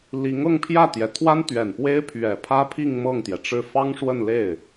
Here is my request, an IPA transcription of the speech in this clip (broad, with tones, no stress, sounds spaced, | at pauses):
l i˧˥ ŋ ɤ˥˧ ŋ pʰ j ä˥˩ t̪ j ɛ˨˩ t̪ʰ w a˥ n t̪ ɥ ɛ˨˩ n p w e˥ ɪ̯ pʰ ɥ ɛ˨˩ pʰ ä˥ pʰ i˥˧ ŋ m ɤ˥˩ ŋ t̪ j ɛ˩ ʈ͡ʂ ɻ̩˥˩ f ɑ˥ ŋ ʂ w ə˥˧ n l e˥˩ ɪ̯